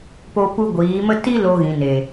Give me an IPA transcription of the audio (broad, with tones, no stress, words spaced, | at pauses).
po˧pu˧ ɡʷiː˨˦mə˦ ti˦ lo˧ɣĩ˨ne˨